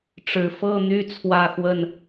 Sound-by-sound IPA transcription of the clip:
ʈ͡ʂ ɻ̩˨˩ f ɤ˥˨ n̪ y˥˨ t͡sʰ w ä˥˨ x w ə˥˨ n

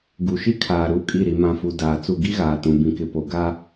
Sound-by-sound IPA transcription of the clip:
ɡ u˨ ʃ i˦ kʰ aː˨ ɾ uː˦ kʼ i˦˨ ɾ i˨ m ã˨ f u˨ d aː˨ t͡s u˦˨ ɡ i˦ ɣ aː˨ t ũ˨ b ĩ˨ k ɪ˨ p o˨ ɡ a˦

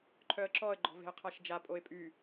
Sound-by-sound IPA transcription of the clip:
ǃʰ œ ə̯ ǁ ɔ ə̯ ɡ͡ǃ ɔ̤ v e̤ ə̯ qʰ a ʃ d͡ʒ a pʼ o ɪ̯ pʼ y

